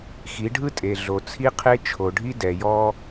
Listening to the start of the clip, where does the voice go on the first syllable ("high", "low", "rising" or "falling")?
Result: rising